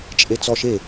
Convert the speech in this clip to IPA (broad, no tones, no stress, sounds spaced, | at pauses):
t͡ʃʼ e t͡s ɔ ʃ e